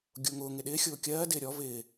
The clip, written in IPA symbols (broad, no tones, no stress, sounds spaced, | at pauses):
ɡʲ ʊː ŋ ʊː ŋ ɪ ɗ ɪː xʲ ʊː kʲ ɜː d ɪː ɾʲ ɔ v ɪː